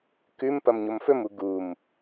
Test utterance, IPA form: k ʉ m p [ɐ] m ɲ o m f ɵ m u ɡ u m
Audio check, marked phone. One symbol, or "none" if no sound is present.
ɐ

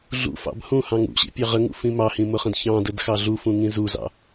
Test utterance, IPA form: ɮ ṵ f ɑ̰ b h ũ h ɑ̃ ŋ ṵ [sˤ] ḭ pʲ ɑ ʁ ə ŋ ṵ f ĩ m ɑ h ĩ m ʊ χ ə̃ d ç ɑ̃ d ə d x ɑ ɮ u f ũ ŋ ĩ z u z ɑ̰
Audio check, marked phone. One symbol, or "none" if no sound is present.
ɕ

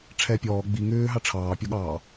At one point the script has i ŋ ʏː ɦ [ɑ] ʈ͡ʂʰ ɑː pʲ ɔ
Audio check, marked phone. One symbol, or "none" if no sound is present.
ɑ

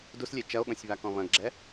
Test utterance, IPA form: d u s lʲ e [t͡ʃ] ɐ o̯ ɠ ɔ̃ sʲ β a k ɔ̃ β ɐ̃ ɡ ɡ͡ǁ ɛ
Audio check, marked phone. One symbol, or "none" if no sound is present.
t͡ʃ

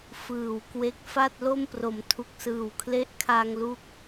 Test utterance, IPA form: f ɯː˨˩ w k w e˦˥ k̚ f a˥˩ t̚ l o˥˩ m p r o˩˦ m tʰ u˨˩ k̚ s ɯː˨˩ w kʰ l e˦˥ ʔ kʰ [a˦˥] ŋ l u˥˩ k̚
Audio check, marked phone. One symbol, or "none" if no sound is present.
a˧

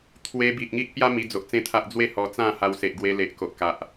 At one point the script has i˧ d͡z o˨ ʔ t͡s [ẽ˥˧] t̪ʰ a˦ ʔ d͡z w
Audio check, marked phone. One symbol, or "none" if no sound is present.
ẽ˥˧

